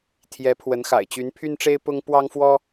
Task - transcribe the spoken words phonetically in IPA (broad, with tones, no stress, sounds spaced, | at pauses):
t̪ʰ j ɛ˨˦ pʰ w ə˨˦ n x a̰˨˩ ɪ̯ t͡ɕ y˨˦ n pʰ y˦ n ʈ͡ʂ e˦ ɪ̯ p ʊ˦ ŋ p w ɑ˦ ŋ f w ɔ˦